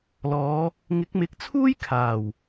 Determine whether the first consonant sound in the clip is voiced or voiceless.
voiced